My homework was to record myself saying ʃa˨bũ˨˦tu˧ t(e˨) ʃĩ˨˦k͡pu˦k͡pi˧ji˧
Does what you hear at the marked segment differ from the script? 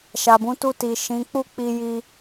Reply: yes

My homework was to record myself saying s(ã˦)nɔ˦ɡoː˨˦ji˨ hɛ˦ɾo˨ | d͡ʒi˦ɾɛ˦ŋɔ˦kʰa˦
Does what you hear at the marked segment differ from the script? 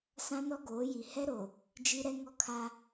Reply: no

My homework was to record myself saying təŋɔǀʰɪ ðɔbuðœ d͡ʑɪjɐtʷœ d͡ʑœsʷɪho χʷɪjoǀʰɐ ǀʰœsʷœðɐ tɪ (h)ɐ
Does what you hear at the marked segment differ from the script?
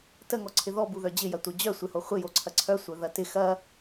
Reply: yes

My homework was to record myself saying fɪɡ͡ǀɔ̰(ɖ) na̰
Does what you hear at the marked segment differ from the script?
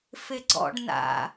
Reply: no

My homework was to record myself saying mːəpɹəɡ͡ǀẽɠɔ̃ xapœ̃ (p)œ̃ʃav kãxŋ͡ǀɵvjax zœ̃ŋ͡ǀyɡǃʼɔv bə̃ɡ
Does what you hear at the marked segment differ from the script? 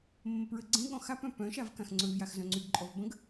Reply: no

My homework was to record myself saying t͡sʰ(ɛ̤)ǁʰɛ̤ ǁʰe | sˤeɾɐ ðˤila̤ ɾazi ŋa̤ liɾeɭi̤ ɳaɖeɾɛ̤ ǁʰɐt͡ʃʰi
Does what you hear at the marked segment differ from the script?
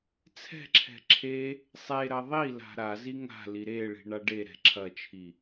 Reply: no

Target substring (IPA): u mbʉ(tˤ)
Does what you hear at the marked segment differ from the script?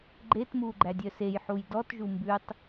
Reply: no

